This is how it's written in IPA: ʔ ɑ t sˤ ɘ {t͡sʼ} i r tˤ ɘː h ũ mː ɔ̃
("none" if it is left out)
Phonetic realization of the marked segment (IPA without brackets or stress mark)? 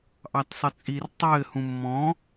t͡sʼ